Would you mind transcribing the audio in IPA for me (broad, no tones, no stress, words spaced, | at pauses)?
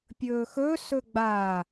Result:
pʲɵːxɵ sɵɡ͡ba